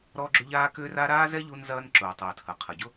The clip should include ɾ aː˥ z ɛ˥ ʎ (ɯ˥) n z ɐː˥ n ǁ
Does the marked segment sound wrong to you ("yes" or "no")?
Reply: yes